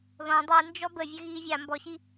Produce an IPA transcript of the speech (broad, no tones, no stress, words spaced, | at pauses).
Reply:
ðɔ̃ dˤind͡ʒɔ bəvʲə ɣiːvʲa mbɔɕi